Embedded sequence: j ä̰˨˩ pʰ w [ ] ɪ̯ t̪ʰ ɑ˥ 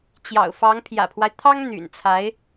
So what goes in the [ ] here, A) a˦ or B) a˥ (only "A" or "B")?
A